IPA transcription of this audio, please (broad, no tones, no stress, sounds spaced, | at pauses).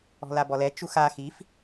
ɔ̤ l a b ɔ l ɛ t͡ʃ u x a x i f